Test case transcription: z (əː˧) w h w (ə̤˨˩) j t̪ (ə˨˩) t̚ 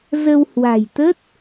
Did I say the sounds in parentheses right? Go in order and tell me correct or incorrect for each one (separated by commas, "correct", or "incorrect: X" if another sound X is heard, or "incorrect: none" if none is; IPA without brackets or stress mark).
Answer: incorrect: ə˧, incorrect: a̤˨˩, incorrect: ə˦˥